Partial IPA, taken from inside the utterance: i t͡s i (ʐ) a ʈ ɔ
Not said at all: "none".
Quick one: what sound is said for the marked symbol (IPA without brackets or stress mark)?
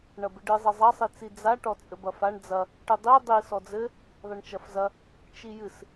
d͡z